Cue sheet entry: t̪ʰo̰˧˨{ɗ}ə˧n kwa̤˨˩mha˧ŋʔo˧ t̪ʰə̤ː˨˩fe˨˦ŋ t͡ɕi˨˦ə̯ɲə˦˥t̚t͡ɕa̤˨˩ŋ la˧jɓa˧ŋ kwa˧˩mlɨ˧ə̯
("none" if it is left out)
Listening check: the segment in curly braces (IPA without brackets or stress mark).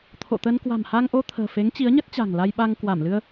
t̪